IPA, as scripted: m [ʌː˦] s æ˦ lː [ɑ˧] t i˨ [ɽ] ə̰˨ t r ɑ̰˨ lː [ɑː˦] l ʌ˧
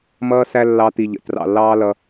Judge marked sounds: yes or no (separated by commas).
yes, yes, no, yes